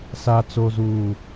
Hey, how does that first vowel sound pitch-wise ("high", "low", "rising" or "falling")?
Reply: low